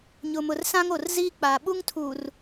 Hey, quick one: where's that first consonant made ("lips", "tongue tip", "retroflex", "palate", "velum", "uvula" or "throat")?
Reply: palate